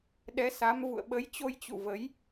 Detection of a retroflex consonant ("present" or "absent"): absent